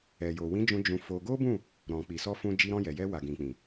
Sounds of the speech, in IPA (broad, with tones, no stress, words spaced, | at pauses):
ɛ˨jo˨wĩ˨˦d͡ʒũ˧ d͡ʒũ˧fo˧ ɡo˦bũ˦˨ | ɾɔ̃˨k͡pi˨ sɔ˧fũ˧ d͡ʒi˧ɾɔ̃˧jɛ˨jɛ˧ wa˨ɡĩ˨k͡pĩ˨